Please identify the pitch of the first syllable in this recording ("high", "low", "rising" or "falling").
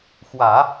low